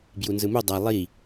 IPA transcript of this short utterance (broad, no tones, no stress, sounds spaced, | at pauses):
b j u n z ɯ m u dˤ a lˠ i